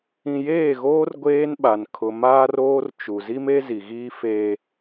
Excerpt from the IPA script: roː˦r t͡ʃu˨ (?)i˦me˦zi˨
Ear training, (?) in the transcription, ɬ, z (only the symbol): z